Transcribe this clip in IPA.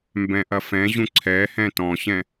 m b ɛ̃ ʔ ɐ f ɛ̃ ʑ ũ ǀʰ ɛ h ɛ̃ t ɔ̃ ɕ ɛ̃

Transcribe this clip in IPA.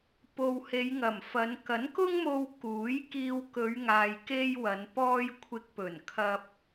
p o˨ w h e˨˧ j ŋ ɐ˨˩ m f ɐ˨˧ n k ɐ˨˥ n k ʊ˥ ŋ m o˧ w k uː˨˥ j k iː˧ w k ɵ˨˧ ɥ ŋ aː˨ j k e˥ j w ɐ˨˧ n p ɔː˥ j kʷʰ ɪ˧ k̚ p ɵ˨˩ n kʰ ɐ˧ p̚

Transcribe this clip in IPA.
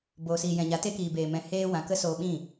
b oː˨ s iː˨ j ɛ̃˨ ɲ a˨˦ t e˧ k iː˨ b eː˨ m ɛ̃˨ h eː˧ w ã˨ k ə˦ s oː˧ ɓ ĩ˦˨

